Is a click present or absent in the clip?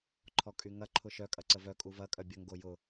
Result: present